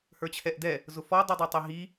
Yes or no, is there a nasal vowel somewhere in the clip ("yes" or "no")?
no